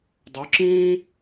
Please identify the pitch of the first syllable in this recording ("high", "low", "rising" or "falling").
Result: rising